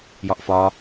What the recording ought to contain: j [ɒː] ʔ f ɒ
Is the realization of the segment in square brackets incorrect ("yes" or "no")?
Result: yes